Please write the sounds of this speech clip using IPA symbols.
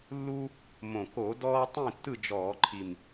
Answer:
lːu˦ | mõ˨˩ko˧˩˧ dɔː˦tˤĩ˥˨tːɯ˥˨ d͡ʒɔː˧˩˧ǃʰi˨˩m

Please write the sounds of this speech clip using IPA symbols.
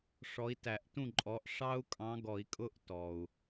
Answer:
ʂɔ˨˦i̯tæ˨˩˦ʔtũ˥˩ǃʼɔ˨˦ʔ ʂɑ˦˥u̯ kʼɑ̃˨˦ ɡɔ˨˩˦i̯kʼʊ˦˥ʔ tɔ˩u̯

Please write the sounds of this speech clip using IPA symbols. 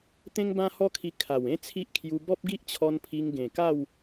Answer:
t̪ẽ˦ŋbã˦hɔ˦kʰi˧ kʰa˨˩w ẽ˦t͡sʰi˦ʔkʰju˧ bɔ˦p̚ɡi˦ʔt͡ɕʰɔ˧n pʰi˧ŋɡẽ˨˩ka˥˧w

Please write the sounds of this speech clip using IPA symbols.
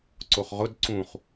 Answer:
ǀoχʁʊd ǀũχ

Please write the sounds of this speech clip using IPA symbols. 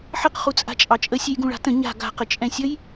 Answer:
ħəq χut͡sʼa̤t͡ʃʼɑt͡ʃʼə sʲejɡũɭa̤tə̃ ɲa̤ ɡa̤ qət͡ʃʼɛ̃sʲəj

